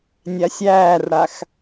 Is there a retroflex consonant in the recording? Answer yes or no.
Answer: yes